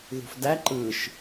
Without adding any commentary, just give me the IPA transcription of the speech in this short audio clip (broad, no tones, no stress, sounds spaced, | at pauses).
ð ṳ f d æ ǃ ɯ ʃ